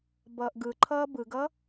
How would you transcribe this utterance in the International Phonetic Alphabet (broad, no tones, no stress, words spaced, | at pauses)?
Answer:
bʌːʔɡɯǃʰʌː bɯɡʌ